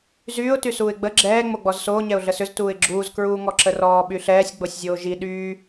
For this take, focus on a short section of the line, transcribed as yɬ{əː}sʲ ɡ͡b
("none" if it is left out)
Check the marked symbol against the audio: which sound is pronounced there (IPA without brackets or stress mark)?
ɛː